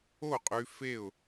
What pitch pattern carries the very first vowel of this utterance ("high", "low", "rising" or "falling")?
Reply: falling